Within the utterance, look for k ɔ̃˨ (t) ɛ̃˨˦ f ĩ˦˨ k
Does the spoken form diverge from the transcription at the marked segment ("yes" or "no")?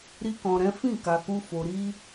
yes